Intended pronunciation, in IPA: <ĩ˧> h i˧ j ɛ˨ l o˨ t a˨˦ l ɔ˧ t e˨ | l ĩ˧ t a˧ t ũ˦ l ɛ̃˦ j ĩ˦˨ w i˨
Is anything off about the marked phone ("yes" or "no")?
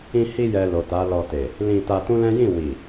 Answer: no